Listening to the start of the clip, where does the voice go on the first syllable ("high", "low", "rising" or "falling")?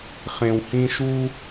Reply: low